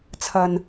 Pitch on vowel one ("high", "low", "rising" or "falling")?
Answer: low